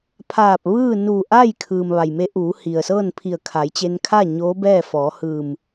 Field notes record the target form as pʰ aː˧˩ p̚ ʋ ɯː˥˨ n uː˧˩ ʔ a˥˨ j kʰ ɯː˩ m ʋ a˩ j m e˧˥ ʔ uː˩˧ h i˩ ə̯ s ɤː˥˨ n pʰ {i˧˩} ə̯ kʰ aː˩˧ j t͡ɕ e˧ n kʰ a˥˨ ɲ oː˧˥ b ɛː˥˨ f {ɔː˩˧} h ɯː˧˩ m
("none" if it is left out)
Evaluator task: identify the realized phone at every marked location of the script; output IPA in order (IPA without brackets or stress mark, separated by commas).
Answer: i˧˩, ɔː˩˧